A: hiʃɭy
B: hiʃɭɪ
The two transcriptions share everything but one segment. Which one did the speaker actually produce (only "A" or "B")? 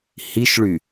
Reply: A